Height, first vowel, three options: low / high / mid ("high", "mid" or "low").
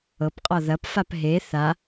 mid